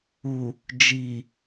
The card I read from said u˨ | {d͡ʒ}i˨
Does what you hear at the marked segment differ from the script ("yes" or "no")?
no